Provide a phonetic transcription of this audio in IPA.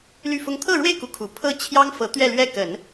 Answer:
l y˥˩ f ʊ˥ ŋ t̪ʰ ɤ˥˧ ɻ w e˥˩ ɪ̯ k u˧˥ kʰ u˨˩ pʰ ɤ˥˩ t͡ɕʰ j ɑ˥ ŋ f ɤ˧˥ t̪ ɥ ɛ˥˧ l ɥ ɛ˥˩ k ə˨˩˦ n

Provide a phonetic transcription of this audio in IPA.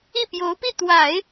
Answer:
i˥˩ p j o˧˥ ʊ̯ p i˥˩ t̪ w a˨˩˦ ɪ̯

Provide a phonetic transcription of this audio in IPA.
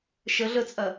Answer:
ʃ ə ɮ ə t͡sʼ ɐ

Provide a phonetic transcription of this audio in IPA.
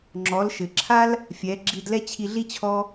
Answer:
ŋ͡ǁ ɔ˩˧ l ʃ ɘ˩ ǁʰ a˥ l | fʲ ɛ˩˧ ɡ͡ǁ i˧ d l ɛ˥ t͡ɕʰ i˧ ɮ i˥ t͡ɕʰ ɔ˥

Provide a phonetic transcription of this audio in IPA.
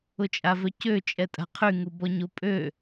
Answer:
ʊ t͡ʃʼ a v œ c ø t͡ʃʼ ɛ tʼ a̤ qʰ y ŋ u b ɔ ɲ o pʼ ø

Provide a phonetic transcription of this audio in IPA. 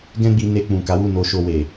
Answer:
ɡ ɛ̃˦ ɡ͡b i˧ n e˧ k͡p ũ˨ k a˨˦ w u˦˨ n o˧ ʃ o˧ w e˨

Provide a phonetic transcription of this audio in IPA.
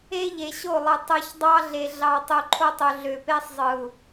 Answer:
e˦ ʎ e˨ ɕ o˦˨ lˠ ɯ˨ tˤ ɯ˨ ç dˤ ɑ˦ ɮ e˨ ɮ ɑ˨ tˤ u˨ ǃʰ o˦ tˤ ø˨ ɮ ø˨ p e˦ sˤ zˤ ɯ˨ u̯

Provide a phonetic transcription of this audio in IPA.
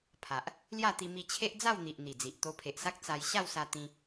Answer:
pʰ a˨ ʔ | l j a˥˧ t̪ i˧ m i˧ t͡ɕʰ e˦ ʔ d͡z a˥˧ w n̪ i˨ ʔ n̪ i˨˩ d͡z i˨ ʔ t̪ o˧ pʰ e˨ ʔ s a˦ k̚ t͡s a˧ j ɕ a˥˧ w s a˧ t̪ ĩ˧

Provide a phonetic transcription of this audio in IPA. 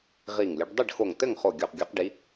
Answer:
ʁ i˧˩ ŋ lʲ ɘ˨˦ ɖ dˤ i˥˨ ɖ x o˧˩ ŋ t ɘ˥˨ ŋ χ o˧˩ ɡʲ o˧˩ q ɡʲ ɔ˨˦ q ɖ i˨˦

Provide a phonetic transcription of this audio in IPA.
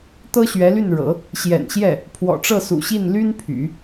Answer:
t̪ ɤ˥ ɕ ɥ ɛ˧˥ l y˥˩ n ɻ ɤ̰˨˩˦ | ɕ j ɛ̰˨˩ n ɕ j ɛ˥˩ | pʰ w ɔ̰˨˩ ʈ͡ʂ ɤ˥˩ s ṵ˨˩ ɕ i˥˩ n l y˥ n pʰ y̰˨˩˦

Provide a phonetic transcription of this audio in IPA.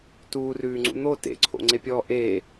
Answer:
t uː r ʉː ŋ͡ǀ ṵ n̪ o t ḛ ǀʰ o̰ ŋ͡ǀ e pʲ ɔː ʔ e

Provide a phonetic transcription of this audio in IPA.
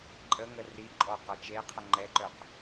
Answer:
ǃʼ ə ŋ ə r i ǃʼ ɔ q ɔ t͡ʃ e qʰ ə ŋ͡ǃ ɛ ǃ œ q

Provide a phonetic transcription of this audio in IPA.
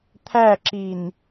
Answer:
t̪ʰ æ ǁ i n

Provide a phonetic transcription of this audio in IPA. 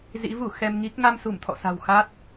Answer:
z ḭ˧˥ v u˧˩ x ɛ˧ m ŋ i˦˥ k̚ ŋ a˧ m s u˧˩ m t̪ʰ ɔ̰˧˨ s a̤˨˩ w x a˦˥ t̚

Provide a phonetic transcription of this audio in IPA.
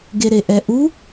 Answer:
ɡ e ɾ e ʔ ɛ ʔ u

